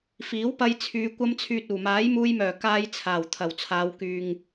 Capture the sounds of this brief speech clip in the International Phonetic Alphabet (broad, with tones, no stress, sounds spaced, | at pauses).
f iː˨˥ w p ɐ˧ j t͡sʰ yː˨˧ kʷ ɐ˧ m t͡sʰ yː˨ t̚ uː˨˩ m aː˨˥ j m uː˧ j m œː˨˩ k aː˧ j t͡sʰ aː˨˩ w t̪ʰ ɐ˨˩ w t͡sʰ aː˨˧ w k yː˨ ŋ